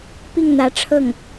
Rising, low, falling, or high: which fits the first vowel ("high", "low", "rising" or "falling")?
falling